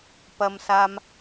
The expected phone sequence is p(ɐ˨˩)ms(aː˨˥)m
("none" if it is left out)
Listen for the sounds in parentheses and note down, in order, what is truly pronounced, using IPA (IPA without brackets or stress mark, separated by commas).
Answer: ɐ˥, aː˥